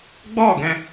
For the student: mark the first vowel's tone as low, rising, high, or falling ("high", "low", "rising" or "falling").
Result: falling